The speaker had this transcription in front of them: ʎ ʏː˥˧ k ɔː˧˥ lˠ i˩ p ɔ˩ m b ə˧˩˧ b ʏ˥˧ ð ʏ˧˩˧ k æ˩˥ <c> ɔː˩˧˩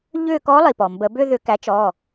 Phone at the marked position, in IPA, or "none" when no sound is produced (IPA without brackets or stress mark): t͡ʃ